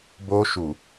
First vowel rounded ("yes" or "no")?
yes